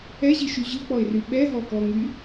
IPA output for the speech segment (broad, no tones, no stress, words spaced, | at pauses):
ɛʑiʃy ʑɯk͡pɔɪ̯ry ɓɛɦɔkɔŋy